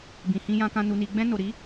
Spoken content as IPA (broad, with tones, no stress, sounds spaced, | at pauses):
b ĩ˨ h ĩ˧ j ã˧ k ã˧ n u˨ n i˨ ɡ͡b ɛ̃˧ n o˨ ɾ i˨˦